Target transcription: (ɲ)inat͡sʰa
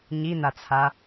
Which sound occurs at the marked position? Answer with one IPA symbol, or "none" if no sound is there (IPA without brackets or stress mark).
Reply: ɲ